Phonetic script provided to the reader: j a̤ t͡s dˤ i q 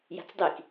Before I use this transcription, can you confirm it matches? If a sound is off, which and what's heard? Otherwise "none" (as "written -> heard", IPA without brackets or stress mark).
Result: q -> k